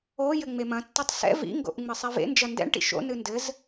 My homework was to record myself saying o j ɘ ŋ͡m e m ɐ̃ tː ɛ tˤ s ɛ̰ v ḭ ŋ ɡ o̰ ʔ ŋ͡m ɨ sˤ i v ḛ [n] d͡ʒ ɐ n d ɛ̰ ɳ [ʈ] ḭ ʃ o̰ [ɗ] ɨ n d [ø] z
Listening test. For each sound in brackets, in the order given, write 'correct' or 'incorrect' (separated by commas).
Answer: correct, correct, incorrect, incorrect